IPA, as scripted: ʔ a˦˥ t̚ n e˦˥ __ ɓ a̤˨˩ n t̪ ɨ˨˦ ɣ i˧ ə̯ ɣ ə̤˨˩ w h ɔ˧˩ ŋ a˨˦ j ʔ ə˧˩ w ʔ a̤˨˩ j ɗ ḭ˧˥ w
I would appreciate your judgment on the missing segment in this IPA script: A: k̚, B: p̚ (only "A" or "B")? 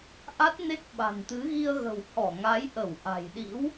A